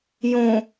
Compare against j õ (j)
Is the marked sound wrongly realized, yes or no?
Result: yes